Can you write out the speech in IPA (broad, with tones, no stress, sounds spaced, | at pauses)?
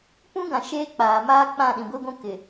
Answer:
p ũ˦ ɡ ã˨ ʃ eː˦ k͡p aː˨ m aː˦ k͡p ã˦˨ ɗ ĩ˨ ɡʷ i˦ ɡʷ ũ˦ k ɪ˨